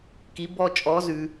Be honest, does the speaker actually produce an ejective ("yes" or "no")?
yes